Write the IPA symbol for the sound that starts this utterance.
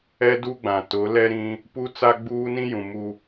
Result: ɛ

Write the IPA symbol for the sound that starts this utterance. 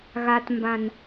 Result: ɣ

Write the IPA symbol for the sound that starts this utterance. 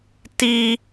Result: t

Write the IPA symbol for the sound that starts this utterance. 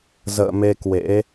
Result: z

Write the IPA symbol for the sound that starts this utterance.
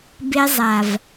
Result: b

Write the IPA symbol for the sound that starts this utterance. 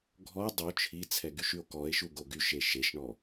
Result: ɡʱ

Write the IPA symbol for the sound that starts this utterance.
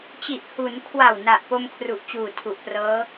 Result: t͡ɕ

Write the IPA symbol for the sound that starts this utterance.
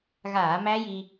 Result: ɣ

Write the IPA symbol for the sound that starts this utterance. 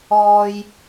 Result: ɔː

